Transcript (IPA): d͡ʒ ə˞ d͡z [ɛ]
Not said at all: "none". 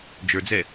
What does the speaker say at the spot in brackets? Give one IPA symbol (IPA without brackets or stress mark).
ɛ